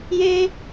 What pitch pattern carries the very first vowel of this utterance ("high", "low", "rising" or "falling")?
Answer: high